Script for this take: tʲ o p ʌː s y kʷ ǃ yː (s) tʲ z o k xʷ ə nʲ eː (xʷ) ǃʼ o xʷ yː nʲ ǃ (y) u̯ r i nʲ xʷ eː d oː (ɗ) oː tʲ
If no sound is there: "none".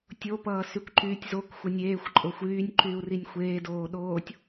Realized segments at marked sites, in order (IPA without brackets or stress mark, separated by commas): none, xʷ, yː, ɗ